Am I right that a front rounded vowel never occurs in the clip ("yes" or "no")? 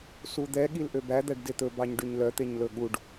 no